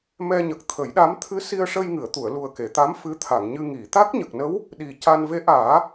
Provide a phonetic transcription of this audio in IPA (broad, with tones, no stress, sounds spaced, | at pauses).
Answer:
m ɛ˧ ɲ ə˨˩ k̚ t̪ʰ ə˨˩˦ j ɗ a˧˥ m t̪ʰ ɨ˧˥ s i˧ ə̯ ʂ ə˧ j ŋ ɨ˨˩˨ ə̯ t̪ u˨˩˨ ə̯ l u˨˩ ə̯ k e˨˩˨ t̪ a˧˥ m f ɨ˧˥ t̪ʰ a˨˩˨ ŋ ɲ ɨ˧ ŋ i˨˩˨ t̪ a˦˥ k̚ ɲ ə˨˩ k̚ n ə˧˥ w | ɗ i˨˩ c a˧ n v e˧˥ ʔ aː˨˩˦